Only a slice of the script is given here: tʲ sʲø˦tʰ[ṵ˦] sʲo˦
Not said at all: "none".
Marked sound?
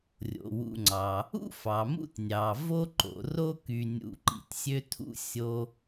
ṵ˦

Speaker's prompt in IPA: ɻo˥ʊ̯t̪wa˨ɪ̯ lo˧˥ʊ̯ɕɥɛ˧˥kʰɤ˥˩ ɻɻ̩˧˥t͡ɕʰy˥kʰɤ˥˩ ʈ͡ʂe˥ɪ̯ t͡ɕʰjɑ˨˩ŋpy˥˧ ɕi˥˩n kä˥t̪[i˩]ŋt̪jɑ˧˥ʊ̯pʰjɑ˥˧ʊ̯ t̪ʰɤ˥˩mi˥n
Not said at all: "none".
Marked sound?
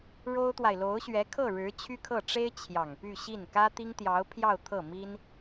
i˥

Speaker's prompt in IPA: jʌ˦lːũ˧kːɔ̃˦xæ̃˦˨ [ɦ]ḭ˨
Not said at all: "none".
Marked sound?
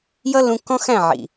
ʕ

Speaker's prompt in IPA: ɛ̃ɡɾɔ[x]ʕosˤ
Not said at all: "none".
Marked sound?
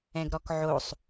k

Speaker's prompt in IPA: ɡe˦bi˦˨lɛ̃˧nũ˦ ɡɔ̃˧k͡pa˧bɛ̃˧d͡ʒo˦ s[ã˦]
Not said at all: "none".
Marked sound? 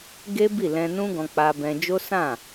ã˦˨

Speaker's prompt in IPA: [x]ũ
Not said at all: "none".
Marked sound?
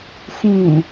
x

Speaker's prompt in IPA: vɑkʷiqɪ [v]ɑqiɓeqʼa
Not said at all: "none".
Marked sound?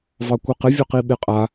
vʲ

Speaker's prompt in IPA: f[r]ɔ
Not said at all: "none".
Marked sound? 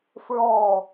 ɹ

